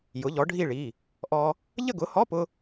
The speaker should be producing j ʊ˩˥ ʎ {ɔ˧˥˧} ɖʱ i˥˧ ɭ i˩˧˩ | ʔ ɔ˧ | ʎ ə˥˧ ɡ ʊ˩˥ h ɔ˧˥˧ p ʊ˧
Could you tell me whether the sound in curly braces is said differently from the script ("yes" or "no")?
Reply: yes